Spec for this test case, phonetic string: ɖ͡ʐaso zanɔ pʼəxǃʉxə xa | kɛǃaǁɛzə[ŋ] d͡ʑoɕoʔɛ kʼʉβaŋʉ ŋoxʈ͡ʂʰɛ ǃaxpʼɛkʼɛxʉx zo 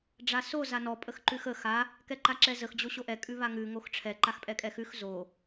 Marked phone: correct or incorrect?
incorrect